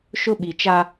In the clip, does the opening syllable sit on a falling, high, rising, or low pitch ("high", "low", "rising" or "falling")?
high